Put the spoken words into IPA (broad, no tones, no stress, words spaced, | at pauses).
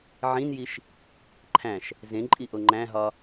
ʕĩnjiʃ | ǃʰæ̃ʃ | zẽǃʼiʔo ŋ͡ǃæ̃ɦɒ